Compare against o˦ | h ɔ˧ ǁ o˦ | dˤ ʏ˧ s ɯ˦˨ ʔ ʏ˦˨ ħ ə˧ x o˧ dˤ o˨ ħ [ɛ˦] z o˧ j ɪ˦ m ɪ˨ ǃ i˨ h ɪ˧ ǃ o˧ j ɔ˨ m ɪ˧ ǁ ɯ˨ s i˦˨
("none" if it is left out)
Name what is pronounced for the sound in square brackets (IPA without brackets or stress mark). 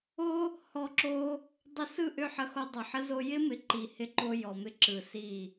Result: ə˦